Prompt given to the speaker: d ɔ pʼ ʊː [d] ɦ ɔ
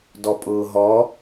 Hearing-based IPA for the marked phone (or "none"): none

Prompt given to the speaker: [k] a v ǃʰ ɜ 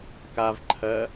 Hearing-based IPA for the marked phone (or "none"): k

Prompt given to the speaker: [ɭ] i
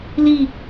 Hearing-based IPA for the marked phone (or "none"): l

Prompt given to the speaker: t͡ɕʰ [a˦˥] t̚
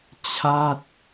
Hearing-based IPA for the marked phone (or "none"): a˥˩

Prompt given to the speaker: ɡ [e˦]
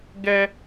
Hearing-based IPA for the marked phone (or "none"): ɛ˦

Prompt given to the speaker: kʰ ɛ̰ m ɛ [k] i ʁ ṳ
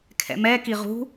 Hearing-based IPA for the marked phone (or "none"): k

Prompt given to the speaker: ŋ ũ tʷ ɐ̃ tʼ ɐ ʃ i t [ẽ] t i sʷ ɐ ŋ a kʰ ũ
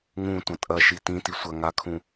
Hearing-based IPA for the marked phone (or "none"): ĩ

